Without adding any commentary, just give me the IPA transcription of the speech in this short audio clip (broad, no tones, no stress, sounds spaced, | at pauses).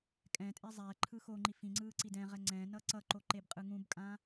kʼ ɛ̃ tʼ e zˤ ɛ ǃʰ ɯ x o ŋ͡ǃ i f ĩ ŋ͡ǀ ɯː ǀ i d ɛ̃ ʁ ɛ ŋ͡ǀ ɛ̃ n ʌ ǀ ʌ ǃ o ǃ e b qʼ ɯ ŋ ũ b kʼ ã